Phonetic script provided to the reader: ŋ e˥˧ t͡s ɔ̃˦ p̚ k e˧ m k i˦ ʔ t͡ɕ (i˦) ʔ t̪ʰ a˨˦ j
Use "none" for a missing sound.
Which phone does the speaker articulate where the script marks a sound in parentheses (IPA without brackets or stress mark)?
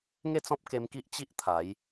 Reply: i˦